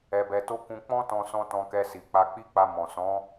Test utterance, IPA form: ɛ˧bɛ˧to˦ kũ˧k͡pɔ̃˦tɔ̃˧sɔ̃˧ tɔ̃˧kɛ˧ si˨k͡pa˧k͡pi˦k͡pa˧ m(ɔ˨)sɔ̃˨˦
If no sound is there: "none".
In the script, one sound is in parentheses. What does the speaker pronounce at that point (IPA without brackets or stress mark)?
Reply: ɔ̃˨